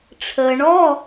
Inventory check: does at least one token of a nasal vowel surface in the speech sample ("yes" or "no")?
no